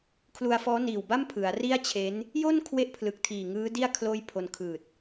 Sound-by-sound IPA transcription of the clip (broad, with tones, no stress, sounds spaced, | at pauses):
kʰ l u˧ a̯ f ɔː˦˥ n iː˨˩ w b a˥˩ m pʰ ɯ˩˦ a̯ r i˥˩ a̯ t͡ɕʰ e˦˥ n | j o˥˩ n kʰ w e˥˩ ʔ pʰ l ɯ˨˩ k̚ tʰ iː˨˩ ŋ ɯː˦˥ d i˥˩ a̯ kʰ l oː˥˩ j pʰ o˧ n kʰ ɯː˨˩ t̚